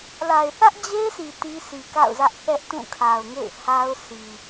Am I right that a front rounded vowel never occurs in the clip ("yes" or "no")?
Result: yes